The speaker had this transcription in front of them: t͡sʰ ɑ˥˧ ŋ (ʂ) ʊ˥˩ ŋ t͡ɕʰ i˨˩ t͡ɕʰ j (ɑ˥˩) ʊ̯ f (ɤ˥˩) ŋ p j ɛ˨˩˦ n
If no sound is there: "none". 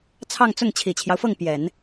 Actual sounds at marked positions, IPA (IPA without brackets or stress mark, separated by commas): t͡s, ɑ˦, ɤ˥˩